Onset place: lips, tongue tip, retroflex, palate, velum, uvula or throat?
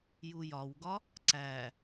palate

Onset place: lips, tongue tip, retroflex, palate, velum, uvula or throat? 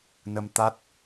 tongue tip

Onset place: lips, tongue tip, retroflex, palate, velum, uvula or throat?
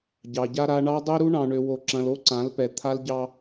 palate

